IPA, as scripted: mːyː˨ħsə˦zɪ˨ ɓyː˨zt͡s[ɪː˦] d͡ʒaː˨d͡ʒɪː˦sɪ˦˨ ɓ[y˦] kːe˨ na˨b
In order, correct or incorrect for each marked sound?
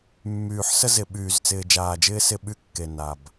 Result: incorrect: ɪː˨, correct

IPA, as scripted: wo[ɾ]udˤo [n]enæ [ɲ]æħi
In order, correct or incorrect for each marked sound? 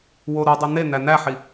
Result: correct, correct, incorrect: n

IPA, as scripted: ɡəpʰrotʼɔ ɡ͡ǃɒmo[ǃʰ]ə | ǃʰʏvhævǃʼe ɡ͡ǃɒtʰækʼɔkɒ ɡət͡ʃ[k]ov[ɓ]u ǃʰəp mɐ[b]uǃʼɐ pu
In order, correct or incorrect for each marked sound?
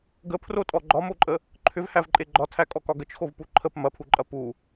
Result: incorrect: ǃʼ, incorrect: x, incorrect: p, incorrect: pʰ

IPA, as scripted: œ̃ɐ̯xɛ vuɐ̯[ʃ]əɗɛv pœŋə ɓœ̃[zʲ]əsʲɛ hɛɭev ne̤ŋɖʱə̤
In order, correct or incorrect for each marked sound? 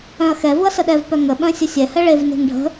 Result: incorrect: s, incorrect: sʲ

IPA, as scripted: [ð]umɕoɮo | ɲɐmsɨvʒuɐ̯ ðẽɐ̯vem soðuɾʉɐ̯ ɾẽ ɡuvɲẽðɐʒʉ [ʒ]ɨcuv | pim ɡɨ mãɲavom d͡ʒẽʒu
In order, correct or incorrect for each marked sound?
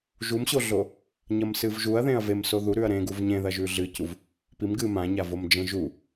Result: incorrect: ʒ, incorrect: ɮ

